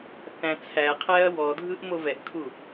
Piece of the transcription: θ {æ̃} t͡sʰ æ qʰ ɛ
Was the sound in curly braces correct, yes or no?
yes